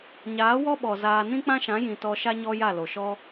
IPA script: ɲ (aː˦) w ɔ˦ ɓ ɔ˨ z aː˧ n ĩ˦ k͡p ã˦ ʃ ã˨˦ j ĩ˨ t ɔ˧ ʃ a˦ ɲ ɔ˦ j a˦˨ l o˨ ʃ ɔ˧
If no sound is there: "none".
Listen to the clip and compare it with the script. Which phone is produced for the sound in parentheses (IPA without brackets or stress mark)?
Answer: aː˨˦